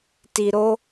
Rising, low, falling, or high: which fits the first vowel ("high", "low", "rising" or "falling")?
low